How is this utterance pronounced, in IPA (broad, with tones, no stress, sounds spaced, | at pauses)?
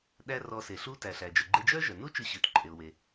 ɗ æ˥ r ɔ˧ s e˩ ɬ u˥ t æ˩ ɬ æ˩ d͡ʒ œ˩ ɡ͡ǃ e˧ d͡ʒ œ˥ ʒ œ˩ n u˥ t͡ʃ ʉ˧ ɕ ʉ˩ t ǃʼ e˩ ʊ̯ w e˩